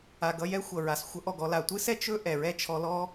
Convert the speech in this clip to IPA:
a˩ ɡ ʌ˧ j ɛ˥ xʷ ʌ˩ ɹ a˩ s xʷ ʌ˧ ʔ ɔ˩ ɡ ɔ˧ l a˩ tʷ ɨ˥ s ɛ˥ t͡ʃ ɵ˥ ʔ ɛ˩ ɹ ɛ˥ t͡ʃʰ ɔ˧ l ɔ˥

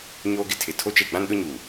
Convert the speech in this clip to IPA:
ɲ oː˦ ɡ ɪ˦ tʰ ɪ˨ tʰ o˦ t͡ʃ e˦˨ ɡ͡b ã˦ n ɗ ʊ˦ ɲ uː˨

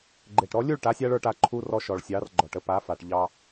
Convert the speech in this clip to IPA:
ɡ͡ǃ e˨˩ ʈ ɾ ɔ˨˥ lʲ u˥˨ ɭ ʈ a˨˥ sʲ a˦ ɭ ə˞˥˨ ʈ a˨˥ ǃʰ u˦ r ɔ˦ ʃ ɔ˨˩ ɭ sʲ ɑ˨˥ r ɡ͡ǃ ɔ˨˩ ʈ ə˥˨ p a˨˥ f a˨˩ ʈ ʎ ɑ˦

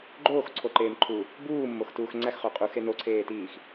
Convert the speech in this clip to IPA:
ɡ͡ǃ oː x ǀʰ o ǃ eː m ǃʰ u | b uː mː o x t uː x ŋ͡ǀ æ x χ o qʼ u x e n o ǀʰ eː t iː x

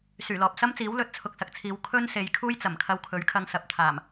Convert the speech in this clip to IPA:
s yː˨˩ l ɔː˨ p̚ s ɐ˥ m t͡s iː˨˥ w l ɵ˨˥ t̚ t͡sʰ ʊ˨ k̚ s ɐ˨ k̚ t͡sʰ iː˨˧ w kʰ ɵ˥ n s e˨˧ j kʰ uː˥ j t͡s ɐ˨˩ m kʰ ɐ˧ w kʰ ɵ˨˥ ɥ kʰ ɐ˧ ŋ s ɐ˨ p̚ t̪ʰ aː˨˩ m

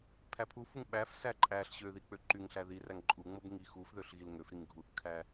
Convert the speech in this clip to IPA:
pʰ æ pʰ u f u ŋ ɓ æ f s æ ǃʼ æ ɬ ɕ ø ð i k͡p ø ǃ y ŋ ɬ æ ð i r æ ŋ ǃʼ u ŋ͡m o b ŋ i x u f ð ø ɬ ɣ i l ŋ ø f ɾ i ŋ ɡʱ u θ kʰ æ

